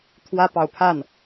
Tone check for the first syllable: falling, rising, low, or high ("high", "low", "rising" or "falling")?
high